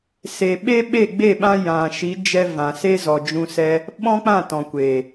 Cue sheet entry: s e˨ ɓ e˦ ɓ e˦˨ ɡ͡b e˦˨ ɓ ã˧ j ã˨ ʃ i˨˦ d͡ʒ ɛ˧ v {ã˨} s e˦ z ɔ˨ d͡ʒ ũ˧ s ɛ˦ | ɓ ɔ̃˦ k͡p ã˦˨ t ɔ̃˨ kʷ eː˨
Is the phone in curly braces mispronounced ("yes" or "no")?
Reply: no